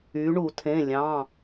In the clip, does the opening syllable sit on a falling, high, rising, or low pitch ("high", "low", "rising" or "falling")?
rising